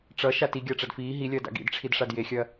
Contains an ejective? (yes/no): no